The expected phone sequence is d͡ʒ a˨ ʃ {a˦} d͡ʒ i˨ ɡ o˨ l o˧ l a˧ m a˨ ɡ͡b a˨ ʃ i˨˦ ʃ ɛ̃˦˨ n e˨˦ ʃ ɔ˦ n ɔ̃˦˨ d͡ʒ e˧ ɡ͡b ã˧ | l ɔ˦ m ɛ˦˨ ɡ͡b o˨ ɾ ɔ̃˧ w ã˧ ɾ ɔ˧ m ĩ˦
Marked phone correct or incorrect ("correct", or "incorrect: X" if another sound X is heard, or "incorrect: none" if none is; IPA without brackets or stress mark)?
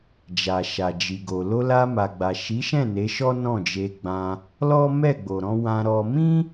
incorrect: a˨